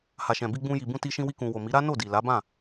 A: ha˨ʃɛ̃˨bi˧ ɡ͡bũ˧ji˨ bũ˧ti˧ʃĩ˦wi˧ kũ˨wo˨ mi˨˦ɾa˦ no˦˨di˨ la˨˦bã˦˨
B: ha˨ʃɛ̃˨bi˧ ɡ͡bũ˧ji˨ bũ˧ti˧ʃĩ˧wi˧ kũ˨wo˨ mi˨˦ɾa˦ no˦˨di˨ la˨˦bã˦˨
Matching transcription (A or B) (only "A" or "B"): B